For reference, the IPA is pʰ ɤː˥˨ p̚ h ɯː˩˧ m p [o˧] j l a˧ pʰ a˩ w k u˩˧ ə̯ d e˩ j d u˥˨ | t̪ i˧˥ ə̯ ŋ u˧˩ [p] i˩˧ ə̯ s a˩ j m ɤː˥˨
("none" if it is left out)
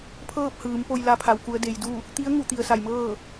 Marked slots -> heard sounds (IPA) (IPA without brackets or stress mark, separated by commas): o˧, t̪